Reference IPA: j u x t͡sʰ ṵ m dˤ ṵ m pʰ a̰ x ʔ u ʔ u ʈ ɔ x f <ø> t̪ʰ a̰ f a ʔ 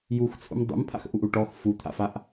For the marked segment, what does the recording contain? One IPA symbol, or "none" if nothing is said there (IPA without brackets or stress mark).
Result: u